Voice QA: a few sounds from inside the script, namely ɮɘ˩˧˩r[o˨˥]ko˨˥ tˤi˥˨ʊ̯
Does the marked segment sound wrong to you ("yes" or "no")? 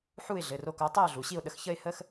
no